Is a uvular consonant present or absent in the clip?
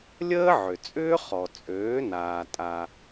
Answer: present